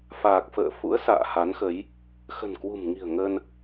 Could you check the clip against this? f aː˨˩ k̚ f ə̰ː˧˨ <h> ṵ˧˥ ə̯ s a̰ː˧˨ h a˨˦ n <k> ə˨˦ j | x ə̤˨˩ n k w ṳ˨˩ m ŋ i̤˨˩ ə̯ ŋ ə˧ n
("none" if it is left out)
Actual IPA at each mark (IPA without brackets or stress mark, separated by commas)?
f, x